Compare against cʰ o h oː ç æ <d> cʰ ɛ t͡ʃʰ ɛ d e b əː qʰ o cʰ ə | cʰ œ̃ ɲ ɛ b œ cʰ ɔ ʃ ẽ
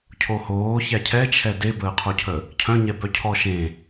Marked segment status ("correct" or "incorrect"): incorrect